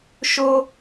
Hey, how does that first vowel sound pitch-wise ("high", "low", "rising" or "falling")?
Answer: high